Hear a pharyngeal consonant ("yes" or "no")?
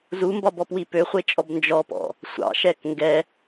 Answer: no